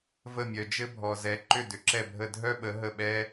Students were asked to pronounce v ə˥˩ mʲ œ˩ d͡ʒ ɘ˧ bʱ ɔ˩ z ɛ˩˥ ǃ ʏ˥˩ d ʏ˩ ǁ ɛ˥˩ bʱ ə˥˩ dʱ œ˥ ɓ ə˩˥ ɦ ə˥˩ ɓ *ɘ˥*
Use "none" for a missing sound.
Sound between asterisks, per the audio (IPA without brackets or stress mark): ɛ˥